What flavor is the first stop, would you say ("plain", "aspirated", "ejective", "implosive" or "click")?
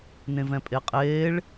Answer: ejective